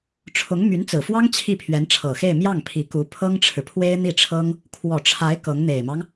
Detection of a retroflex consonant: present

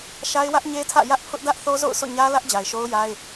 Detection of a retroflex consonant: absent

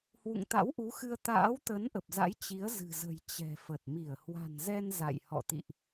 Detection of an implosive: absent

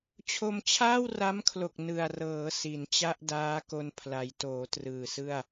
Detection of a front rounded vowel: absent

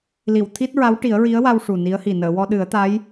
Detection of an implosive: present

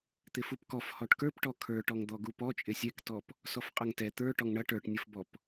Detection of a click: absent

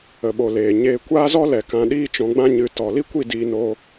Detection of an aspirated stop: absent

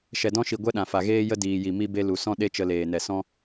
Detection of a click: absent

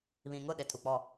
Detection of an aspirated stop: present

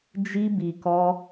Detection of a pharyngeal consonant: absent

